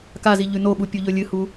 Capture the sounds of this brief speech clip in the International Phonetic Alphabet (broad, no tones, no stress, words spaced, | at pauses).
kazi ʎʉnoɓu pʲuʎɵlʲɨhu